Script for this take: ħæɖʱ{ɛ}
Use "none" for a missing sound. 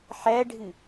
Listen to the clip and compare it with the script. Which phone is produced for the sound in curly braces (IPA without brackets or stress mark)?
ɨ